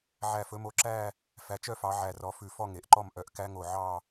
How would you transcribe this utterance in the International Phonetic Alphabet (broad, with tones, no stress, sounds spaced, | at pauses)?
ʕ æ˧˩ f ɵ˨˦ m o˨˦ ǁ æ˥˧ | f æ˨˦ t͡ʃ œ˥˧ f ɑ˨˦ ʕ æ˧˩ r ɔ˨˦ f ʉ˧˩ f ɔ˥˧ ŋ e˩ ʔ ǃ ɔ˥˧ m ʔ œ˧˩ ʔ k æ˦˥ ŋ o˧˩ ʕ ɑ˥˧